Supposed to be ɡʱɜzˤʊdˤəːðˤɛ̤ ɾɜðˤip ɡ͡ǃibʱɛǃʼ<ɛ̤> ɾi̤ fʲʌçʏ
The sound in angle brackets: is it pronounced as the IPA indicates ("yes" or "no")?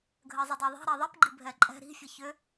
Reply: yes